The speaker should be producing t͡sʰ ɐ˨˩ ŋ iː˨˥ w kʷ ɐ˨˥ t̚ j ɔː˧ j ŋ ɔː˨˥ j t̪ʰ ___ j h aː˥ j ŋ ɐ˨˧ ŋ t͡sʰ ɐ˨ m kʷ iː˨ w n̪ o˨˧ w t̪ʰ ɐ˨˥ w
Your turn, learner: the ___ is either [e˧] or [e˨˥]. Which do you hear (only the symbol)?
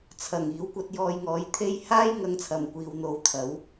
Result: e˧